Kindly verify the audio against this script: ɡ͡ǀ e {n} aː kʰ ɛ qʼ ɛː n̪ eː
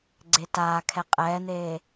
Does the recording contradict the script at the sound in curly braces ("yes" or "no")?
yes